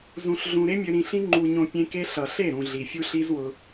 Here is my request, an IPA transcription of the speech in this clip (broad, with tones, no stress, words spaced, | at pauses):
zũ˧ɬɮũ˧ ɾe˦mʲø˧ ɾĩ˧ɬĩ˦ ŋ͡ǃu˧ɲõ˧ pʲẽ˦ke˦ ɬʌ˨ɬe˦˨ɾũ˨ ɮi˨fʲu˦ɬi˦zwʊ˧